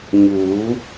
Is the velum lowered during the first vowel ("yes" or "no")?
no